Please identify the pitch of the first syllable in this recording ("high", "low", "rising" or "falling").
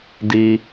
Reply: low